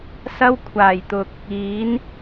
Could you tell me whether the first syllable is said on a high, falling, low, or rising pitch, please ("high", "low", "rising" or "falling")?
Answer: high